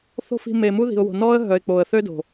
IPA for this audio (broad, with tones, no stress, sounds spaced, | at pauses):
θ o̤˦ f i̤˧ m e˨ m u˦ ð i̤˨ ʊ̯ w o̤˨ n ɔ˦ ə̯ ɦ œ˨ ɪ̯ k͡p o˨ ə̯ θ ø˦ d o̤˨